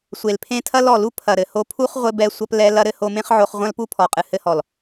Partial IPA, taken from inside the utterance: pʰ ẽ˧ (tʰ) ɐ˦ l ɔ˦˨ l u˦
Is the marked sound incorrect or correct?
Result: correct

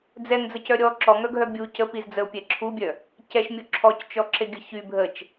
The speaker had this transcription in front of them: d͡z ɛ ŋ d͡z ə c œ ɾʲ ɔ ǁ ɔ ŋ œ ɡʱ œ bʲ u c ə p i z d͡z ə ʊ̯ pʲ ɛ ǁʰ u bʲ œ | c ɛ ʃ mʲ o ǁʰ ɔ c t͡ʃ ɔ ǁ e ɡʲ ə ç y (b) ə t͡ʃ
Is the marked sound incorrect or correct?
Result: incorrect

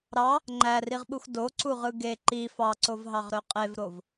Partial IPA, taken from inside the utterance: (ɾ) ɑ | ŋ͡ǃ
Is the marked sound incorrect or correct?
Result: correct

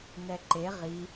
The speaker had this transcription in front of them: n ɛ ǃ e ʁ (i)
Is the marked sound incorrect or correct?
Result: correct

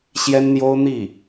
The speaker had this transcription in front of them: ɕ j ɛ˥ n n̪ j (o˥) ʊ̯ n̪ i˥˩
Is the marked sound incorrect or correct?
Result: correct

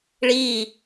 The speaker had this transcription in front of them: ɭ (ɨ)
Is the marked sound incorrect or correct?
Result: incorrect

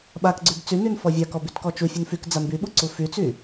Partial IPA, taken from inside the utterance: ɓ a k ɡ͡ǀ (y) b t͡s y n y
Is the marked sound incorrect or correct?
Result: correct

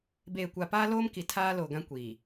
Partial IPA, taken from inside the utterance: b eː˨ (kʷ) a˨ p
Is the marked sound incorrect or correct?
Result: correct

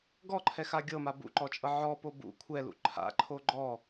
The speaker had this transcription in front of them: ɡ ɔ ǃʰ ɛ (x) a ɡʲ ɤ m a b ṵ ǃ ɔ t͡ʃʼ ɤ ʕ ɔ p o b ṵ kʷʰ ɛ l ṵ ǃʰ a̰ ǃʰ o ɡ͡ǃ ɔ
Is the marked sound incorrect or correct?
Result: correct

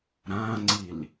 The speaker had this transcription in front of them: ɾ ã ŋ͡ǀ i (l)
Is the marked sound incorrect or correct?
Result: correct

